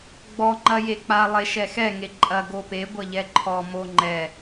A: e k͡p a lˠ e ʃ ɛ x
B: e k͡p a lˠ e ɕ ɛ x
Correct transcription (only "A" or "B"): A